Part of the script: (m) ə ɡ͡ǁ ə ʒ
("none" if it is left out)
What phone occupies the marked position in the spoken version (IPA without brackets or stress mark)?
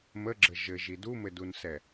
m